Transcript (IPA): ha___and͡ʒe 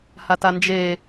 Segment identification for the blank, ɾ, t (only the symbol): t